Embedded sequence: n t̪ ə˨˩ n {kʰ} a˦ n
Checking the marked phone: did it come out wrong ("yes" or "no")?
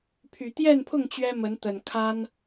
no